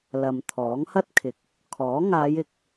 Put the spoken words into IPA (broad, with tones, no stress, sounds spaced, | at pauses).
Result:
l ɐ˨ m t̪ʰ ɔː˨˥ ŋ h ɐ˥ t̚ kʰ ɪ˨ k̚ | kʰ ɔː˨˥ ŋ aː˨˧ j ɪ˨ k̚